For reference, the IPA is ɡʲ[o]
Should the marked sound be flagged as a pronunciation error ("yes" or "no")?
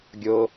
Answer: no